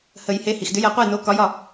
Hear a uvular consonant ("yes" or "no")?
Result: yes